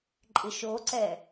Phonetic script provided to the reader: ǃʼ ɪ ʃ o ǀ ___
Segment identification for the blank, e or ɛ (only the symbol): ɛ